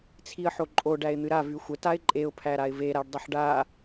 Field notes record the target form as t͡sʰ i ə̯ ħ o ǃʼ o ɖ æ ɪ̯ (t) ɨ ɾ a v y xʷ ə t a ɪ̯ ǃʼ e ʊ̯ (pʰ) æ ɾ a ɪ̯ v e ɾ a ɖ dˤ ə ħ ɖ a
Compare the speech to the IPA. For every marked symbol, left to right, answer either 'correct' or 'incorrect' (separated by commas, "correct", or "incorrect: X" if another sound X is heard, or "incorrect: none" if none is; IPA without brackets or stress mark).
incorrect: n̪, correct